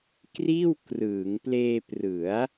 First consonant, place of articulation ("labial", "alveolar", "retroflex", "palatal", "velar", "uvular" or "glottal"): velar